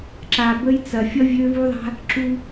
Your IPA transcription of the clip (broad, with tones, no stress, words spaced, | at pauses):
ǁa˨bə˦jt͡sɐ˨ fʲʌ˦vʲø˦vu˦ðˤa̤˦ | ǁu˦